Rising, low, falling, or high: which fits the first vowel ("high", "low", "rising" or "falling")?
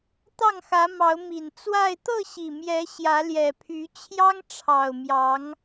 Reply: falling